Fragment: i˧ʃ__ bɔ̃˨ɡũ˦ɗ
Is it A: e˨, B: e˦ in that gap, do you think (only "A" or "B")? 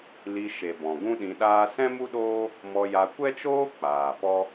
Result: A